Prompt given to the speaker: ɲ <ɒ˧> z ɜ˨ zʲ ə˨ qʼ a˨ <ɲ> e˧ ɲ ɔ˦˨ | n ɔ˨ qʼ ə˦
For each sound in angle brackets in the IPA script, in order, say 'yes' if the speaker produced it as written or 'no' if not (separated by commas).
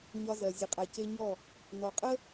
yes, no